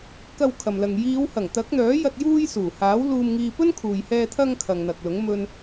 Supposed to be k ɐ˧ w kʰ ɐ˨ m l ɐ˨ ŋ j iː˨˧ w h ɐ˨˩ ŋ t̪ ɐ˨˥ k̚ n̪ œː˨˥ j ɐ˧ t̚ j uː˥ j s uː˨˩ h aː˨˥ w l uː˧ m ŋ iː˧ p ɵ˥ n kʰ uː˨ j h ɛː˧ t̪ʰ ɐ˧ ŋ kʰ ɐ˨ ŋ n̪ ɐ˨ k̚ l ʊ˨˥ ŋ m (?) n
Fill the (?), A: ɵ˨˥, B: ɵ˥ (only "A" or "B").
B